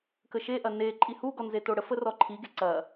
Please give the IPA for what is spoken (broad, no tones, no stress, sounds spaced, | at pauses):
k ə ʃ e ʔ ɐ n e ǃʼ i h u ɡ ɔ n z e t o ɽ ə f ə r ɔ ǃʰ i ɡ e ǀ ɐ